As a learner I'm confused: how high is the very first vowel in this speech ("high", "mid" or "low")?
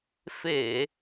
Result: mid